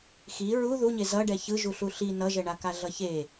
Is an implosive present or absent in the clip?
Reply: absent